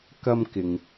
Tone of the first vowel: high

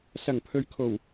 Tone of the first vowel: low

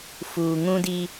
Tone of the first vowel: low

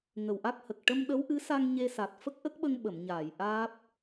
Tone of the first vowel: low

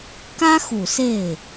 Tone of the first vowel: high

